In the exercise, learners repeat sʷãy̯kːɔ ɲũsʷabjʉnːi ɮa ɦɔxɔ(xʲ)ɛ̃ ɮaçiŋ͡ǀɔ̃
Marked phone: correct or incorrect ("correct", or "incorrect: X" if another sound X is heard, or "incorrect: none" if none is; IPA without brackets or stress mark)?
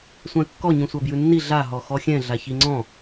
correct